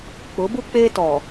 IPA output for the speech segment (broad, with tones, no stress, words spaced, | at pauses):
k͡pʊ˨˦bu˦ k͡peː˦tɔ˨